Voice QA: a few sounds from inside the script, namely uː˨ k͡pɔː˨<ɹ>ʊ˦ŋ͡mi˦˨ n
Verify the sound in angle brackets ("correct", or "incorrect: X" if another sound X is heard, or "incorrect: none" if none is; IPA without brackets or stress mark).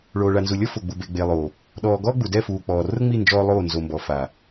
incorrect: r